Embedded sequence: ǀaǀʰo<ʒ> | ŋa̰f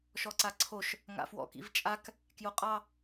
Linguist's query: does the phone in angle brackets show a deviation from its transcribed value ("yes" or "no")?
yes